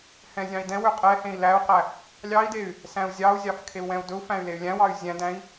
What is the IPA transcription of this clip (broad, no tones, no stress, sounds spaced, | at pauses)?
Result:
h ɛ̃ zʲ ɑ̃ i̯ d ɛ̃ w ø qʼ ɛ h ẽ i̯ l æ u̯ q æ | lʲ ɑ i̯ d e y̯ | s æ̃ u̯ zʲ ɑ u̯ zʲ ɑ f kʰ e u̯ w ɛ̃ u̯ d ɵ u̯ f æ̃ y̯ l e y̯ lʲ æ̃ w ɑ y̯ zʲ æ̃ d æ̃ i̯